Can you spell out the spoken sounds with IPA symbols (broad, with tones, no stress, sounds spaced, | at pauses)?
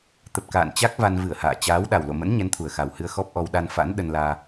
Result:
t̪ ə˨˩ p̚ k a̰ː˧˨ n t͡ɕ a˦˥ k̚ v a˧ n v ɨ˧˩ ə̯ h a̰ː˧˨ t͡ɕ aː˨˦ w ɗ a˨˩ w l o̰˧˨ m ə̰˧˥ n ɲ ɛ˨˦ n t̪ʰ u˨˩ ə̯ x a˨˩ w h ɨ˧ ə̯ x ɔ˦˥ p̚ ʔ ɔ˧ w ɗ a˧ n f a̰˧˥ n ɗ ə˧ n l aː˧